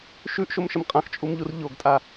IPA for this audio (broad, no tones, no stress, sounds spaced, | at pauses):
ʃ ʉ ʔ ʃ o m ʃ ə m qʼ ã x t͡ʃʼ u m ʎ u r ʎ o ɡ tʼ a